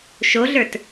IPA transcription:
ʃ o ɮ ə˞ t

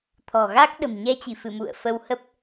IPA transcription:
t̪ʰ ɔ̤˨˩ ɣ a˦˥ k̚ ɗ ə̤˨˩ m ɲ ɛ˧ t͡ɕ i˧˩ f ɨ˧˩ m ṵ˧˨ ə̯ f ə˧ w h ə˦˥ p̚

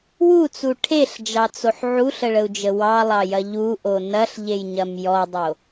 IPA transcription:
w u t͡s u ʈʰ e ɬ d͡ʒ ɑ t͡s o ħ ʕ u ɬ ə ɭ ə u̯ d͡ʒ ə w ɑ lˠ ɑ j ɐ ʎ u ʔ o n ɐ ɬ ʎ e j ɲ ɐ m j ɔ dˤ o

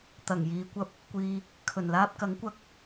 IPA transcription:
t̪ ɐ˨˩ ŋ j iː˨˧ kʷ ɐ˧ p̚ | kʷ iː˨ | kʰ ɵ˨˩ n l aː˧ p̚ k ɐ˨˥ ŋ kʷ ɐ˧ k̚

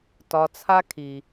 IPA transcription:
t ɒ˨ t͡sʰ a˧ kʰ i˨

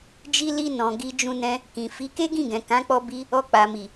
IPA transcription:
d͡ʒ i˦ l i˦ n ɔ̃˧ ɡ i˧ d͡ʒ ũ˧ n ɛ̃˧ | k ĩ˨ f i˨˦ k e˦ ɡ ĩ˦˨ ɡ ɛ̃˨ k ã˨˦ k͡p ɔ˧ b i˧ | ɔ˧ k͡p a˨ m i˨

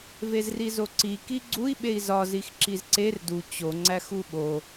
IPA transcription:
v e z r i z o ǀ i k i ɡ͡ǀ u i̯ ɓ e i̯ z ɒ z i x ǁ i z ǀ e r d u t͡ɕ o ŋ͡ǀ æ x u ɓ o

